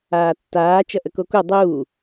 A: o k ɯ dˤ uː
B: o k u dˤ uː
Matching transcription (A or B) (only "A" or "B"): B